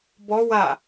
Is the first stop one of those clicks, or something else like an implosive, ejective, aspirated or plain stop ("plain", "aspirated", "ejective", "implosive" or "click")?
plain